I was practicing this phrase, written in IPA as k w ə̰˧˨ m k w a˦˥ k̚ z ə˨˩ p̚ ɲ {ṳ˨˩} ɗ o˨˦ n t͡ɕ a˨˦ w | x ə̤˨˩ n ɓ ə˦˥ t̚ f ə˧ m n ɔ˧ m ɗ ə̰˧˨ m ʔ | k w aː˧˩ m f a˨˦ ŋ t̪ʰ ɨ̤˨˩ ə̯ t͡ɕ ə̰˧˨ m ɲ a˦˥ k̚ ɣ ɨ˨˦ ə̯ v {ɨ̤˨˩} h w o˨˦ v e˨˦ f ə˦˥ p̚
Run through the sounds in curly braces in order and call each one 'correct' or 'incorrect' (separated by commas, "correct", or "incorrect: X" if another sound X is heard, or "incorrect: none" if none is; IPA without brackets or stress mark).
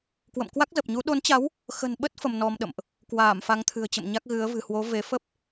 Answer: incorrect: u˨˦, correct